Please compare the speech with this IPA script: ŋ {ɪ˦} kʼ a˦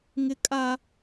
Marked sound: correct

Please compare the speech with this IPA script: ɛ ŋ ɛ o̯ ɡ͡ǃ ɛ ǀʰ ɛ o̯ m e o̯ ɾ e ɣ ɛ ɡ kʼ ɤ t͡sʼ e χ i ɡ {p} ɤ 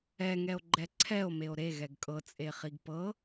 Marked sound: correct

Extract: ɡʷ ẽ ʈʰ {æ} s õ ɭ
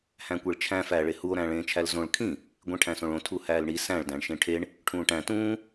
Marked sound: incorrect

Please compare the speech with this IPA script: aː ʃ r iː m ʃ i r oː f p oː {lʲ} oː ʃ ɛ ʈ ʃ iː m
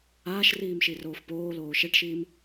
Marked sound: incorrect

